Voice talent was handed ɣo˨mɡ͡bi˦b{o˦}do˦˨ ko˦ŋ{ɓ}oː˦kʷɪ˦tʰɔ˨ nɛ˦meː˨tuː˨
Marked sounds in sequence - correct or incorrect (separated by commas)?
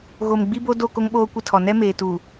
correct, correct